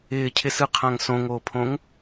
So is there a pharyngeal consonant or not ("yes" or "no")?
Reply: no